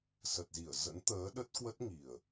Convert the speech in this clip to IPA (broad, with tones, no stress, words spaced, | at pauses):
sə˨˩t̚zi˧˩ə̯zə̰˧˥n t̪əː˨˦ɗə˦˥t̚kwə˦˥t̚ŋi˨˩ə̯